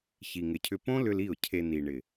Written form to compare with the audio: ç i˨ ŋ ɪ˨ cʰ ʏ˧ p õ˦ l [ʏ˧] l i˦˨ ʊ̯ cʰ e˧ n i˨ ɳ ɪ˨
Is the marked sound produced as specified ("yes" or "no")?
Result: yes